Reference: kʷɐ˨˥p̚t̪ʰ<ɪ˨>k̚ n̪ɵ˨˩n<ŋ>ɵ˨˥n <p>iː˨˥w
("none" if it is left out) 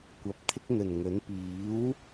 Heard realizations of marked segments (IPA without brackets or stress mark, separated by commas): ɪ˥, ŋ, p